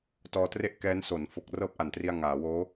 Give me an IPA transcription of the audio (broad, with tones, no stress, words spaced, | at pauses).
tɔː˧tre˥˩ʔkɛː˦˥n so˩˦n fo˨˩k̚ rɤː˥˩p̚ʔa˨˩ntri˧a̯ ŋaː˩˦woː˦˥